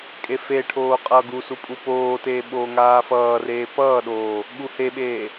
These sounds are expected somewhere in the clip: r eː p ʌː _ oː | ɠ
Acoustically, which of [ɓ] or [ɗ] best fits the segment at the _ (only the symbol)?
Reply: ɗ